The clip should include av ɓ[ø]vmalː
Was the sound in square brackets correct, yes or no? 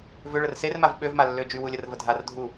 yes